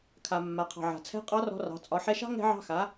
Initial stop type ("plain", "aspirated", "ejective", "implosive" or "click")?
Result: aspirated